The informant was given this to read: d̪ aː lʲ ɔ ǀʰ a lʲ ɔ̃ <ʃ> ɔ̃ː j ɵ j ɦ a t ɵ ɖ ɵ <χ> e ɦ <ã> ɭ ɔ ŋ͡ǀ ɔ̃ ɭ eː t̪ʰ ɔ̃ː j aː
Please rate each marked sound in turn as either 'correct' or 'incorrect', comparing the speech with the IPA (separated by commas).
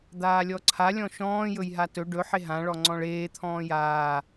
correct, incorrect, correct